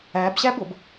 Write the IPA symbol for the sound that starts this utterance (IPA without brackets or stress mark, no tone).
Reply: æ